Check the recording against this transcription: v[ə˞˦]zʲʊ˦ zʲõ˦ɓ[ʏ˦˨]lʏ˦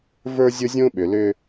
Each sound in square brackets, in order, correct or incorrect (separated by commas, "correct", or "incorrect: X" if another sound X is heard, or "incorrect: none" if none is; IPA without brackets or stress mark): correct, incorrect: ʏ˨